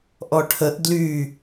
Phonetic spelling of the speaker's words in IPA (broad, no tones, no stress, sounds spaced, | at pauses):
ʔ ɔ ʈʰ ə ʔ d l y